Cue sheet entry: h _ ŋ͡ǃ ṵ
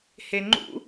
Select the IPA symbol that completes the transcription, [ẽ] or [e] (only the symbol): e